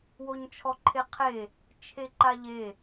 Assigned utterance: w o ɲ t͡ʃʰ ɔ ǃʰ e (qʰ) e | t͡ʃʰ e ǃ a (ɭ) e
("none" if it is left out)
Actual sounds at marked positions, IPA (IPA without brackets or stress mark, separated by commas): qʰ, ʎ